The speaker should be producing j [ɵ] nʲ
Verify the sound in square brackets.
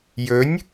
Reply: correct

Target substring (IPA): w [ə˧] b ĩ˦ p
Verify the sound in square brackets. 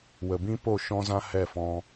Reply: incorrect: ə˨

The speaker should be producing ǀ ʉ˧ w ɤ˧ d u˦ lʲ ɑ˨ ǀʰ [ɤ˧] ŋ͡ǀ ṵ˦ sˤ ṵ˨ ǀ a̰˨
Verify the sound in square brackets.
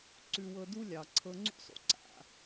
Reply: correct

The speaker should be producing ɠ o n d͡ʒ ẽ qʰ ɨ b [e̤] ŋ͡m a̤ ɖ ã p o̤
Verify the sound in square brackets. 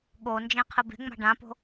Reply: correct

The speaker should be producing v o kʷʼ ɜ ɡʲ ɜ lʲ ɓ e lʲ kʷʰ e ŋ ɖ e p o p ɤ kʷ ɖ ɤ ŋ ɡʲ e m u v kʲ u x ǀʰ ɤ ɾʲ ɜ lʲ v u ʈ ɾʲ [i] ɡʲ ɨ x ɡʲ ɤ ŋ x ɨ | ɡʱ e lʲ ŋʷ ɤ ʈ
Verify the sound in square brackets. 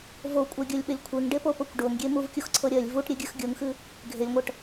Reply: incorrect: e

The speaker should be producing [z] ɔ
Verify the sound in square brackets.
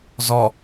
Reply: correct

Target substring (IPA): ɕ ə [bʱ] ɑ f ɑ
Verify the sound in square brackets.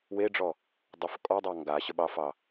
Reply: incorrect: ɓ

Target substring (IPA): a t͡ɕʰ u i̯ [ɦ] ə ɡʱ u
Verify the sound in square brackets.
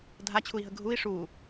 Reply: correct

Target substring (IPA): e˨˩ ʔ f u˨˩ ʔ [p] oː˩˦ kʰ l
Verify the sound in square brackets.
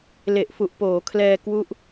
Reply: correct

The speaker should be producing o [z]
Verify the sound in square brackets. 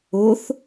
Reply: incorrect: θ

